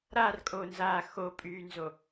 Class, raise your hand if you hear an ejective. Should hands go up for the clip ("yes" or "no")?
yes